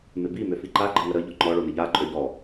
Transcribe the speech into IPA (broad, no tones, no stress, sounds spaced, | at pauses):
m ɪ b i m ø f i ǃ a ɡ͡ǃ ɪ ŋ ə ɾ ə ʎ ɔ ŋ͡ǃ ɔ ɭ o n ɪ ʎ a ǃʼ ø ʎ ɔ